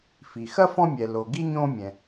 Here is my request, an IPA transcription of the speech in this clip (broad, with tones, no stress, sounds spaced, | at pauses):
f i˩ x ɐ˥ f ɔ̃˥ mʲ ɛ˩ l o˩ ɡ i˥ ɲ õː˥ mʲ ɛ̃˩